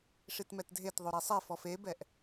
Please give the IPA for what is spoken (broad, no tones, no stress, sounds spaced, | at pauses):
ʂ i t m ɛ t dʱ e t ðˤ o ɾ i sˤ e f ɔ f e b ɛ ʔ